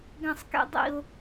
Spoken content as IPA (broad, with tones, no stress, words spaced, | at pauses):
ɡɛ̃˧sˤkḛ˧ dˤḭ˧ʊ̯